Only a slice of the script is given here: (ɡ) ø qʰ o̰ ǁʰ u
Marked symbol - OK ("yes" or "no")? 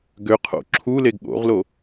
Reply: yes